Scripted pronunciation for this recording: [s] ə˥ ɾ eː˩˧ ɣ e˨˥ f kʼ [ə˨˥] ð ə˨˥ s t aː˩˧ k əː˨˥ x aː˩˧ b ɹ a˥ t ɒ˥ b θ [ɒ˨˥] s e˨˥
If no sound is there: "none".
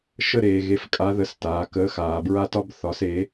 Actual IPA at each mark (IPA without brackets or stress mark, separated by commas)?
ʃ, a˨˥, ɒ˨˥